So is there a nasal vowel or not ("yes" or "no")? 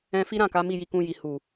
yes